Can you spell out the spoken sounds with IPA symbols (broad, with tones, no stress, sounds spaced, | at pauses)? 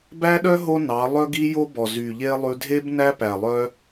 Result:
b æ˦ ɗ œ˦ ɦ o˦ n ɑ˨˦ lˠ œ˦ ɡ i˦ j o˦ b ɔ˨ z y˨ ʎ e˦ lˠ ʉ˧ dʱ e˦ b n æ˦ p æ˨ lˠ œ˦